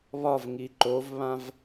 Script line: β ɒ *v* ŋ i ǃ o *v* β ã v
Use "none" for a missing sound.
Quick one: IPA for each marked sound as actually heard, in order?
v, v

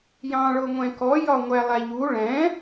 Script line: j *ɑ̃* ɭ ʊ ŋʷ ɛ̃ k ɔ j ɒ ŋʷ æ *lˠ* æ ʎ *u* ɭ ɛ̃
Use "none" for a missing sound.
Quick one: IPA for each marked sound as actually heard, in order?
ɑ̃, lˠ, u

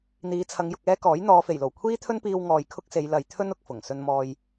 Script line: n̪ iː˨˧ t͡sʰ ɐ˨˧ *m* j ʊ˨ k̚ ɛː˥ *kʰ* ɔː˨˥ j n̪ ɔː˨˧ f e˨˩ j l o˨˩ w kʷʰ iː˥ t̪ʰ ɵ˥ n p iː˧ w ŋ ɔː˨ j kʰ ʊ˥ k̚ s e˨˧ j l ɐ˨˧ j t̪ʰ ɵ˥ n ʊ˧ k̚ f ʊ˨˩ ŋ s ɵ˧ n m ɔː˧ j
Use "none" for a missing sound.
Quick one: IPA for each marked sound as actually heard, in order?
ŋ, k

